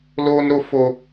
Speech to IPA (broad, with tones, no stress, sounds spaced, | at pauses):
l oː˦ n ɾ o˦ f o˦